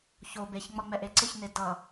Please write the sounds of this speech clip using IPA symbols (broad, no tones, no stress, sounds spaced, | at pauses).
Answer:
ç o b e ç ŋ͡m ʌ ŋ͡m ɛ ʔ e ǀ ɪ ç n e d ʌ